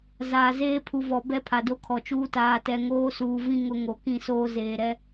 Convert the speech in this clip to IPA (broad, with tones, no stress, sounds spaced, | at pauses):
z a˨ z eː˦ pʰ u˨ v ɔ˨ b ɛ˦ pʰ a˨ d o˦ kʰ ɔ˨ t͡ʃ uː˦ t aː˨ t ɛ˨ ŋ oː˦ s uː˨ v ĩ˦ ŋ ʊ˦ ŋ o˨ k ĩ˦˨ s oː˦ z eː˨ ɾ ɛ˦